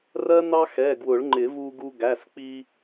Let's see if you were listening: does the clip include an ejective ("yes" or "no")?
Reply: no